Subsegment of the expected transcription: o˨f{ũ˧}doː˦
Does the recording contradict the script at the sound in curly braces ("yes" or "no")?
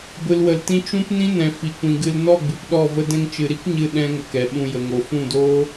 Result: yes